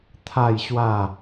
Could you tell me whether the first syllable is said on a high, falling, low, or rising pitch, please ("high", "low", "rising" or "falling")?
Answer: falling